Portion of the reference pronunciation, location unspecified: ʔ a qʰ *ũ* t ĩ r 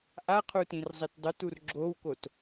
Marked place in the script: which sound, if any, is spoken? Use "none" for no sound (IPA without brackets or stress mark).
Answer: u